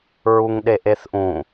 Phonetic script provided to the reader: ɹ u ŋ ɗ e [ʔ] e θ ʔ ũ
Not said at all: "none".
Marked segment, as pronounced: ʔ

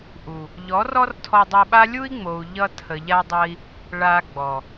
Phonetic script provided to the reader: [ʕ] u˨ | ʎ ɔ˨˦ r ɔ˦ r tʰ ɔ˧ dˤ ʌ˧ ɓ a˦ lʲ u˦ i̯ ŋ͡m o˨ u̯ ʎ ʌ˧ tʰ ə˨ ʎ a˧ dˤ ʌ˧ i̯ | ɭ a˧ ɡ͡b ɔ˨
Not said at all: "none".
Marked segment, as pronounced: ʔ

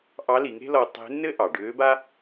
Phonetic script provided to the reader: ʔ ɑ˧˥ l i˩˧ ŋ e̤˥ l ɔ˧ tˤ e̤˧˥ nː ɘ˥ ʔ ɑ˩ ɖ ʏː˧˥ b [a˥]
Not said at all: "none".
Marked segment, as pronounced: a˥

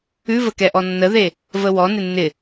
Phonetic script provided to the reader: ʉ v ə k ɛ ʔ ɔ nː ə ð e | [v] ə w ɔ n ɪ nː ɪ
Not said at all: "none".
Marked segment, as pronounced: v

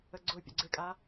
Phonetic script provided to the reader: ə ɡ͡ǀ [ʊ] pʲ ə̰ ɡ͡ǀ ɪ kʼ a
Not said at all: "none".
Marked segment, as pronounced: ʊ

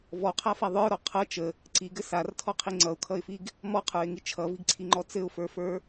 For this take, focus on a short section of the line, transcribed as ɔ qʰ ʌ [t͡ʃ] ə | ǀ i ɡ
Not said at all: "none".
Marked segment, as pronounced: t͡ʃ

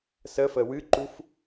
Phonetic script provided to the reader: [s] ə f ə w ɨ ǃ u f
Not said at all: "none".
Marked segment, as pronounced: s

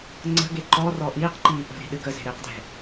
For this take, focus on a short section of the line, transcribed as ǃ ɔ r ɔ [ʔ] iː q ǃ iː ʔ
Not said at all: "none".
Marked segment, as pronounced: ʔ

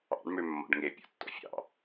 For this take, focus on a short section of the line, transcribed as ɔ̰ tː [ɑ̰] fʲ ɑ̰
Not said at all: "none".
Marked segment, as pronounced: ɔ̰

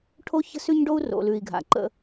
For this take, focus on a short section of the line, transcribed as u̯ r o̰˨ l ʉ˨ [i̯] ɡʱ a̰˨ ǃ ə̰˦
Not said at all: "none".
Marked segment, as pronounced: i̯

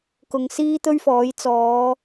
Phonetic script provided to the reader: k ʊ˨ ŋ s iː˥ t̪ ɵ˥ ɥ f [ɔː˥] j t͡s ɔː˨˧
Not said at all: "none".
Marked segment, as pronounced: ɔː˨˥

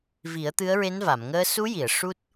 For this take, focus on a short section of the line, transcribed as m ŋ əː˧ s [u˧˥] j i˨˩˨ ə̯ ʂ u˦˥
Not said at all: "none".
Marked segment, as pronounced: u˧˥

